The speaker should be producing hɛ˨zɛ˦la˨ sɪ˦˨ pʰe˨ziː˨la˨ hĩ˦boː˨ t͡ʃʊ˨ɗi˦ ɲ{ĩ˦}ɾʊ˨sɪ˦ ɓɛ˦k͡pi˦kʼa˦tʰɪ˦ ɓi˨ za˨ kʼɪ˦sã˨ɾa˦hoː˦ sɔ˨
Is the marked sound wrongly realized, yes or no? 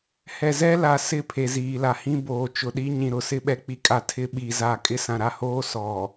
yes